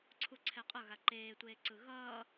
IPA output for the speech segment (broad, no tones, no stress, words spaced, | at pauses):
ǀʰuǀʰɛqʼʌ ɣaǃeːtʷeːǀɯ ɣʌː